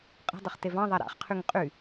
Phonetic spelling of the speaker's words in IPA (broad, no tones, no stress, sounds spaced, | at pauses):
qʼ ə̤ dˤ ə χ t e v ɑ̃ ðˤ a ɾ a̰ χ qʰ y ŋ qʼ y